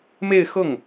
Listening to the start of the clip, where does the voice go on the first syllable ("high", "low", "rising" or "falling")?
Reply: falling